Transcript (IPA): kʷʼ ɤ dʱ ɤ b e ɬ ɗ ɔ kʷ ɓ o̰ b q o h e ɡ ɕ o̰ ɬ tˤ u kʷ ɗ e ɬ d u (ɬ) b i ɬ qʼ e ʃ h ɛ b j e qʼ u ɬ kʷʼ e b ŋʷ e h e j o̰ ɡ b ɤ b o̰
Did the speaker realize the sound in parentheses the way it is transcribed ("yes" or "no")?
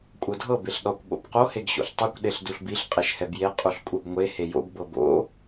yes